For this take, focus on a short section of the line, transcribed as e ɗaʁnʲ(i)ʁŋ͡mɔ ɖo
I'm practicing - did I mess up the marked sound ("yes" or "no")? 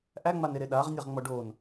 yes